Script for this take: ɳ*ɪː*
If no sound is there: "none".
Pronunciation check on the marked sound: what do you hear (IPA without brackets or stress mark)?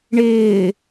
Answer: ɪː